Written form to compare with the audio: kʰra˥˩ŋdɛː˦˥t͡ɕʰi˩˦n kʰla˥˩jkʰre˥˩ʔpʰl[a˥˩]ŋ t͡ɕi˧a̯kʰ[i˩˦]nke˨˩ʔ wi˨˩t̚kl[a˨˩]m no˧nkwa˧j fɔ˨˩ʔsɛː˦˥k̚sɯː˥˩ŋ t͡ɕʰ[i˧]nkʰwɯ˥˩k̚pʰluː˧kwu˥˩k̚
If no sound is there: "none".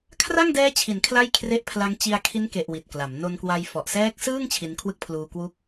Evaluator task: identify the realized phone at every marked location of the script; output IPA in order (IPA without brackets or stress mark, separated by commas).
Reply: a˦˥, i˦˥, a˩˦, i˧